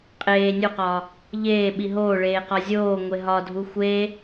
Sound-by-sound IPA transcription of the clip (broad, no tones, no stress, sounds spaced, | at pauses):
qʼ eː nʲ o q ɒː | ʎ eː ɓ i ɦ oː ɭ eː q ɒ zʲ oː ŋʷ e ɦ ɒ dʱ u xʷ eː